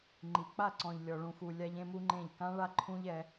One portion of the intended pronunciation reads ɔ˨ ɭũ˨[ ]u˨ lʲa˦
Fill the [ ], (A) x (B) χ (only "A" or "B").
A